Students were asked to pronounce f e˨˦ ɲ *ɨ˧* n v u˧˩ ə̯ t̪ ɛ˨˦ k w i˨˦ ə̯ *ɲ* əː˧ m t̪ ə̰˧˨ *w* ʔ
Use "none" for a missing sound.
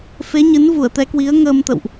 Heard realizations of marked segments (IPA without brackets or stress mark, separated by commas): ɨ˨˦, ŋ, w